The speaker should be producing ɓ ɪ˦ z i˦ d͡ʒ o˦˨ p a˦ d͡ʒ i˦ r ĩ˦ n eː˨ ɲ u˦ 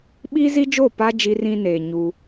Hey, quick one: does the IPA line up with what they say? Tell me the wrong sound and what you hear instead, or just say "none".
ɪ˦ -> i˦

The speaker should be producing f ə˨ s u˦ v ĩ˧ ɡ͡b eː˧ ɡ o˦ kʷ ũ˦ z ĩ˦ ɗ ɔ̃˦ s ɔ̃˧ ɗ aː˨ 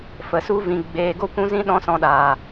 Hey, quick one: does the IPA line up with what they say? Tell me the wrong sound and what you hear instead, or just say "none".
none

